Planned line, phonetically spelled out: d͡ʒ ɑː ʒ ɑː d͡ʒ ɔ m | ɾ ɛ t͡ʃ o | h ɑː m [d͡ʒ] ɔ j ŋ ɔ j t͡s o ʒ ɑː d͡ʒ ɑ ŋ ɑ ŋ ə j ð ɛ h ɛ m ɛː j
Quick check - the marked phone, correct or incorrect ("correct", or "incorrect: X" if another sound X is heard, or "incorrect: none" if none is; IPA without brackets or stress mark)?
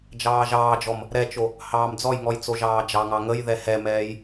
incorrect: d͡z